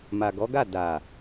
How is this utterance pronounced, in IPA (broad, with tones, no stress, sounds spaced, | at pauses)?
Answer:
m a˨ ɡ ɔ˨˦ ɡ a˦˨ d a˨